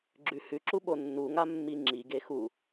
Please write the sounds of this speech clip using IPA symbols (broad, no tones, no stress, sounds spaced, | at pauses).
ɡ͡ǁ ʉ h ʉ ǁ u ɓ o nː u ŋ a mː i ŋ͡ǁ i ɡ e x u